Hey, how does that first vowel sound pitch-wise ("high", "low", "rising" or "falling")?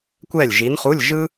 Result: falling